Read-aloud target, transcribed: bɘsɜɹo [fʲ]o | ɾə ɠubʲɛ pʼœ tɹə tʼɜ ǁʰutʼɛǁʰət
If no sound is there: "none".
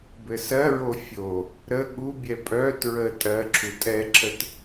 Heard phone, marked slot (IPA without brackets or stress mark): fʲ